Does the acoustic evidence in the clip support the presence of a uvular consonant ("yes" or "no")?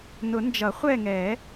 yes